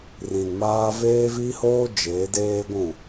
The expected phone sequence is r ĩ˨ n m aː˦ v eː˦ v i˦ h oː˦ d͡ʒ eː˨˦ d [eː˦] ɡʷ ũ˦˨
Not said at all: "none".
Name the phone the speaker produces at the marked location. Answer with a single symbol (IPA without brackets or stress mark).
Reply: eː˦